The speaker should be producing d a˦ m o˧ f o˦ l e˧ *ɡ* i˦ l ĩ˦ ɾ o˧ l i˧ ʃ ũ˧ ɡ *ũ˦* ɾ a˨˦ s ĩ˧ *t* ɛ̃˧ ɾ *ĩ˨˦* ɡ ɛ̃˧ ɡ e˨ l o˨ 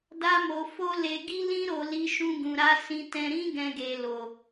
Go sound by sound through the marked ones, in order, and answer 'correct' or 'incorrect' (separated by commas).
correct, incorrect, correct, incorrect